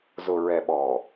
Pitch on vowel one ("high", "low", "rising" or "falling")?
low